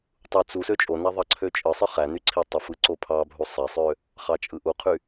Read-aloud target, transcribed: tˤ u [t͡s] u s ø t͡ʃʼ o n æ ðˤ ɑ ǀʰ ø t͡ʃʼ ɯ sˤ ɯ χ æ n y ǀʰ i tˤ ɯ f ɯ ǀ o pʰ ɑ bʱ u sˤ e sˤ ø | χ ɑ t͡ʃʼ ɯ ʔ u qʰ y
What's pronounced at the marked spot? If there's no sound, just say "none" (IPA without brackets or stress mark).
t͡s